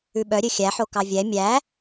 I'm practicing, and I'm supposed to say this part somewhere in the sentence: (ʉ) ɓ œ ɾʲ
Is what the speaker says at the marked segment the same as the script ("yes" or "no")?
yes